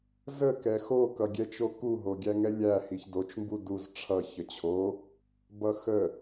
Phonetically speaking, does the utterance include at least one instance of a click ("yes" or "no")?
no